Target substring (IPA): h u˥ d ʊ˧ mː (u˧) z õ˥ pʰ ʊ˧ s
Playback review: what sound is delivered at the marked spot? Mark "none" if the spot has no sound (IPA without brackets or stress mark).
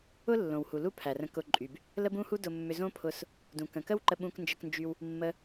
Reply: ʏ˧